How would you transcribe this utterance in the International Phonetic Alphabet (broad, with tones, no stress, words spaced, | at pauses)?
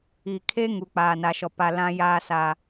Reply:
i˨kʰe˦ ŋu˨k͡paː˨na˨ʃɔ˨ pa˨lã˦ jaː˦sa˨